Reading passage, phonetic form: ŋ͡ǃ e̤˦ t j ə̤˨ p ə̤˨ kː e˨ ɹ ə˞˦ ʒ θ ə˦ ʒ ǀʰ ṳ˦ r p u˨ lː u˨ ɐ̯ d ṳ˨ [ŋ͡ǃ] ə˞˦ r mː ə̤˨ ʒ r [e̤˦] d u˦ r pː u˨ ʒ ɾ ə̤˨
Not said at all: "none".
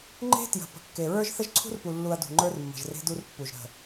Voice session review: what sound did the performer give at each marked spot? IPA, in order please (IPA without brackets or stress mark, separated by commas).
ŋ͡ǃ, e̤˦